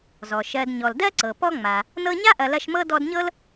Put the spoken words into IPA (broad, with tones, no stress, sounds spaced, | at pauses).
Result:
z ɔ˩ ʃ ɜ˨ d ɲ ɔ˩ l d ɜ˥ ǀ ɤ˩ p ɔ˦ ŋ͡m a˩ | n ɤ˥ ɲ a˥ ʔ ɐ˨ l ɐ˥ ʃ m ɤ˥ d ɔ˦ d ɲ ɤ˥ l